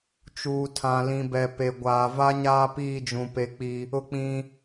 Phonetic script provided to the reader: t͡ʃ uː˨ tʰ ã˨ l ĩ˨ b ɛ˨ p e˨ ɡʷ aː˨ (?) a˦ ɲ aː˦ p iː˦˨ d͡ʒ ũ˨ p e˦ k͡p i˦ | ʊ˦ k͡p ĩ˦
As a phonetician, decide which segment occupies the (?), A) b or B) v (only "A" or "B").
B